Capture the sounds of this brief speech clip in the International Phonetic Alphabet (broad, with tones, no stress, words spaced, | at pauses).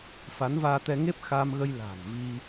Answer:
fa˨˦nvaː˧t̪ɛ˧ŋe˦˥p̚ xa˧mɣə˧jla̤ː˨˩n vi˧